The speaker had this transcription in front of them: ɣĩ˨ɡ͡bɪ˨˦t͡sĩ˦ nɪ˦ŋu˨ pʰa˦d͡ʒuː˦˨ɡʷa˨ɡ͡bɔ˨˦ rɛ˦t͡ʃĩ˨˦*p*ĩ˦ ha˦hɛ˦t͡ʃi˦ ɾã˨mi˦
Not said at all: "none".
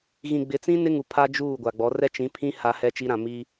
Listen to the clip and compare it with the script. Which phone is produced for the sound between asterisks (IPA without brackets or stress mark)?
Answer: pʰ